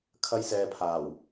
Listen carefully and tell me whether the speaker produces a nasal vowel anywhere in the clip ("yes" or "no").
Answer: no